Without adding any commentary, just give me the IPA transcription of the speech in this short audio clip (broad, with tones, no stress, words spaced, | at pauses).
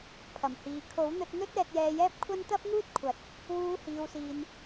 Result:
pʰɐ˨˩mhiː˨ kʰo˨˥wn̪ɵ˧t̚ n̪ɵ˥t̚ ɛː˧t̚jɛː˧jɛː˥p̚ kʷʰɐ˥n t̪ɐ˥p̚ŋuː˥t̚kʷʰɐ˨˥t̚ | wuː˨˧hiː˨wsiː˨n